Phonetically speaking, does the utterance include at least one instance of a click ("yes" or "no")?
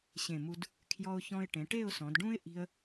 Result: no